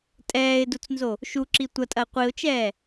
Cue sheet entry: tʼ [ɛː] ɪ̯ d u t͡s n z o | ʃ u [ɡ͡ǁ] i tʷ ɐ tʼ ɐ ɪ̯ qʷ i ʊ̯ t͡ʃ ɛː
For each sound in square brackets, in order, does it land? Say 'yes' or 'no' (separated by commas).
yes, no